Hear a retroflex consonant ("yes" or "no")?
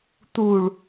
yes